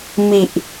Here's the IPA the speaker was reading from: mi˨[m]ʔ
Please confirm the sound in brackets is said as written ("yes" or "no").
no